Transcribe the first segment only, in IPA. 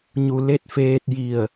ɲ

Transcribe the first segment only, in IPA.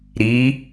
ɾ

